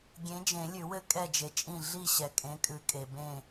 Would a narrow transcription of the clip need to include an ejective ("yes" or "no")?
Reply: yes